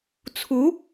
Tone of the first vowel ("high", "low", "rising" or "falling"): rising